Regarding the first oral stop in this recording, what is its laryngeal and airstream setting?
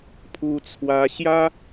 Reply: aspirated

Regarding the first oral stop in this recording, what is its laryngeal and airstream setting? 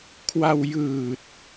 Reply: aspirated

